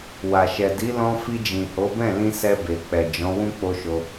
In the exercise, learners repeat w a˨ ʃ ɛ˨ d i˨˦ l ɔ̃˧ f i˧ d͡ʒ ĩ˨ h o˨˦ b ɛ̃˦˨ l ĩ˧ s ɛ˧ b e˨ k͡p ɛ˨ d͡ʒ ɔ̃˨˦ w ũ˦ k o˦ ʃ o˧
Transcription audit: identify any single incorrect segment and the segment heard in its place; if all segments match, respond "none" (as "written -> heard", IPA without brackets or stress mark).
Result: k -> k͡p